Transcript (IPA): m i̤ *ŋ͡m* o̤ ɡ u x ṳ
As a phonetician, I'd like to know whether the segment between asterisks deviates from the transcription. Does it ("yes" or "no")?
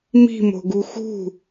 yes